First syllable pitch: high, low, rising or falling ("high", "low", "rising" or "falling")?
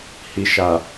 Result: low